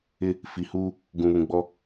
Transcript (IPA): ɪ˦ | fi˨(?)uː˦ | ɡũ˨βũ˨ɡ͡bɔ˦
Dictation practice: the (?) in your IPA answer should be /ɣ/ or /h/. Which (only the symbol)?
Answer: h